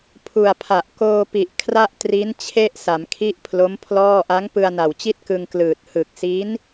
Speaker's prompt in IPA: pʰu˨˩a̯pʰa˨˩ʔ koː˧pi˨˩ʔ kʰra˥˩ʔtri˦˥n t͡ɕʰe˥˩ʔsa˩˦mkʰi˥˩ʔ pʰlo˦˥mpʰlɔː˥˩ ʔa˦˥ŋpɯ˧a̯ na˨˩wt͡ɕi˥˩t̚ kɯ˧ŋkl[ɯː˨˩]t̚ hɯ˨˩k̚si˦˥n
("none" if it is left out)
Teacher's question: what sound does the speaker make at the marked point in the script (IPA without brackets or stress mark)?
ɯː˨˩